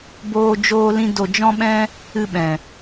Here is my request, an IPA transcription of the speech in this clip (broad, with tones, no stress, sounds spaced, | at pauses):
b oː˦ d͡ʒ oː˦ l ĩ˦ d o˧ d͡ʒ ɔ̃˦ ɓ ɛ̃˦ | ɨ˧ ɓ ɛ̃˨